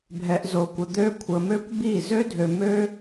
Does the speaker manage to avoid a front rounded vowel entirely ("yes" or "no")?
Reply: no